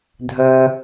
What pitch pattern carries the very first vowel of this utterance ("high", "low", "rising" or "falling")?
low